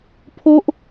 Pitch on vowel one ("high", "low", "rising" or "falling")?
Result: high